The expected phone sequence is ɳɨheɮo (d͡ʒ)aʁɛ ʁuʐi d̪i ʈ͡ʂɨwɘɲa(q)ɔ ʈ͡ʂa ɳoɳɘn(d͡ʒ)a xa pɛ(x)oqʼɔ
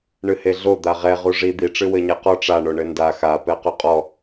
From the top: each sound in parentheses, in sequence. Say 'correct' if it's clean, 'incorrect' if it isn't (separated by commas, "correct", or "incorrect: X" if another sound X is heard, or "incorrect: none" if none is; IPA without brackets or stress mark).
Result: incorrect: d̪, correct, incorrect: d, incorrect: q